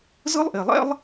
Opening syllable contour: high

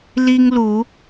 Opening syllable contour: high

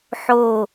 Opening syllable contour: falling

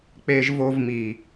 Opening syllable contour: high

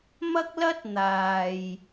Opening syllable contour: high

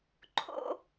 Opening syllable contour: high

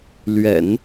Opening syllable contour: low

